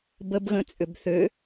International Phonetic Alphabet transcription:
bəbɣə̃ t͡sʼʏbθø

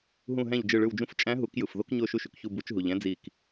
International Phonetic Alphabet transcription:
ɦũ˧˩ɦæ̃˧˩ʎ d͡ʒɯ˧˩ɭɯ˧˩wd͡ʒũ˧f t͡ʃʼæ̃˧˥ɦu˨˩˦k jɯ˩fðo˧kɲo˧˩ ʃu˧ʃy˩kçu˧˩ bu˨˩˦t͡ʃɦu˩ʎæ̃˧˥ d͡zi˧˩k

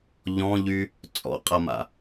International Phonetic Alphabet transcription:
ʎɔ̃ʎy | t͡sʼɔ̰qʼama̰

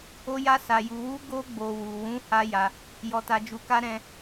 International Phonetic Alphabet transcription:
o˧ja˧ sa˨ju˨wu˧ ɡo˧ɡ͡bo˨wu˨wũ˨˦ ha˦ja˧ | jɔ˧ta˧d͡ʒu˧ka˦ ɾɛ̃˦

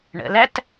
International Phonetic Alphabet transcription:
ɳə̰læt

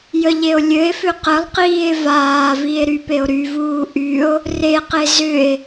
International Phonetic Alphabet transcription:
jəʎeo̯lʲɘe̯fʏ qəlˠqiːe̯ vaːvie̯ ɾypeo̯ɾyvuː ʔyo̯ | reqe zʏe̯

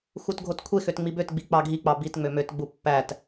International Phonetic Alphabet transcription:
xutɡʱotkʷʰexøt ŋ͡mibøtɡ͡bi k͡pɑɡʱik͡pɑ bitŋ͡mø møtɡ͡bu pːæt

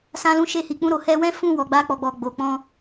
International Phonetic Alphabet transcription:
sã˧lũ˧ʃe˧hi˨ k͡pũ˧ɾo˨ hɛ˧wɛ̃˦ fũ˦˨wɔ˨ɡ͡ba˧ k͡pɔ˨ɡ͡bɔ˨ɡ͡bo˨ k͡pɔ̃˧

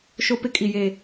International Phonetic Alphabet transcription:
ʃo˦pɪ˦ kʼi˨je˨

